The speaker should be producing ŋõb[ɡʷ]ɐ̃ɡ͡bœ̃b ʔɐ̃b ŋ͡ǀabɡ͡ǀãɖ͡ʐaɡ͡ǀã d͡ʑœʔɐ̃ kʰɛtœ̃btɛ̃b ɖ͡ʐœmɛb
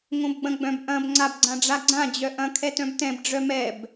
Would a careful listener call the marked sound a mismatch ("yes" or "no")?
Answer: yes